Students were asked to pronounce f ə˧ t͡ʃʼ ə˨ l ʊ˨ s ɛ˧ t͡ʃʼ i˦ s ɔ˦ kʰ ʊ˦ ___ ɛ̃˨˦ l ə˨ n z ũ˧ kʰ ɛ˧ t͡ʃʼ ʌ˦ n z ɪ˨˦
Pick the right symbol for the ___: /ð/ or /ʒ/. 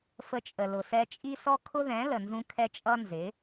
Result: ð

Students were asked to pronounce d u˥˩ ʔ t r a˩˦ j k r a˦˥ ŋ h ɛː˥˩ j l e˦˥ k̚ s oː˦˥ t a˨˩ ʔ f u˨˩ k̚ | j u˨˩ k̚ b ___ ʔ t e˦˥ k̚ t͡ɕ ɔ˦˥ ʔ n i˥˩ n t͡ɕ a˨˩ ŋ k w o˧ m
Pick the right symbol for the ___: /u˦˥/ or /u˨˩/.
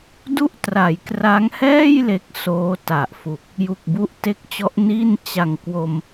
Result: u˦˥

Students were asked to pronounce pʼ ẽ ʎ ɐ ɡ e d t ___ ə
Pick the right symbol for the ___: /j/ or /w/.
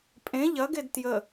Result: j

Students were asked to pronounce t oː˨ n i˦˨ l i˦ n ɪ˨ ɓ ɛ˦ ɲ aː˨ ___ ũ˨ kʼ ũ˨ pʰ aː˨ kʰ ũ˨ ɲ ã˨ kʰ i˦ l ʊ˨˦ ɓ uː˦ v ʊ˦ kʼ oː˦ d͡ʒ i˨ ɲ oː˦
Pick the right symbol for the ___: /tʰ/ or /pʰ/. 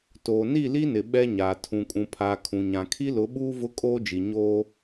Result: tʰ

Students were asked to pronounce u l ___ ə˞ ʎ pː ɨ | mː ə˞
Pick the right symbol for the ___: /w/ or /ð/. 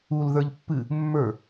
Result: ð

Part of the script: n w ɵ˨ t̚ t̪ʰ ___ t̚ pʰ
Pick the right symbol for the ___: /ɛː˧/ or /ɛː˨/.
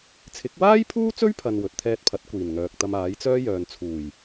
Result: ɛː˧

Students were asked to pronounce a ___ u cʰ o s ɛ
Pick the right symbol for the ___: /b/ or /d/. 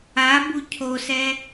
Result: b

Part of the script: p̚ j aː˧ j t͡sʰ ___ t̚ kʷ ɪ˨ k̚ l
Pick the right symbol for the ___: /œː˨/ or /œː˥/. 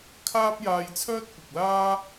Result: œː˥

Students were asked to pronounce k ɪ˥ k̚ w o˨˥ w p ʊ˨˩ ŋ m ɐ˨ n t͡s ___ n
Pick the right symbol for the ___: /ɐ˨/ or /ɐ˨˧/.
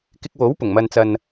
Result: ɐ˨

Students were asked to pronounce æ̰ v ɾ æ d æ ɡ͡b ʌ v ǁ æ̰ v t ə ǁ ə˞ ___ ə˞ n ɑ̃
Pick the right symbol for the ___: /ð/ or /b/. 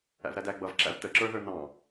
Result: ð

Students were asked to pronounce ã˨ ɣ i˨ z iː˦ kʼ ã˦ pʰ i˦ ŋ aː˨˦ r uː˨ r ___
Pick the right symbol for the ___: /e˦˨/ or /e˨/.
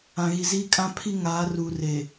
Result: e˨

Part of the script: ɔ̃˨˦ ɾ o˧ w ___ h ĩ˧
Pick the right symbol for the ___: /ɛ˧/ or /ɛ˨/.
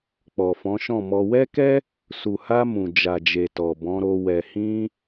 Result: ɛ˨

